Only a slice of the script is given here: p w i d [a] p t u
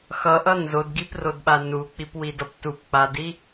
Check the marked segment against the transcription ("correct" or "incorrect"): incorrect